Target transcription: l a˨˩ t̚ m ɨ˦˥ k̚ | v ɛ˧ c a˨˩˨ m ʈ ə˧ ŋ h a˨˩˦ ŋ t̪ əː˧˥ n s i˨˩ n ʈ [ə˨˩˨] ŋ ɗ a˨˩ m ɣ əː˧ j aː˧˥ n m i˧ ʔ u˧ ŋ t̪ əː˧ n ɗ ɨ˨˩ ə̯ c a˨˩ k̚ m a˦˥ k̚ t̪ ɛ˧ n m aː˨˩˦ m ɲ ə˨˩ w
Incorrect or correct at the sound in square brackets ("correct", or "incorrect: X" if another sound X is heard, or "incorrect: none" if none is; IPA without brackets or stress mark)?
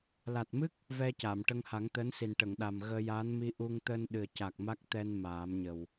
correct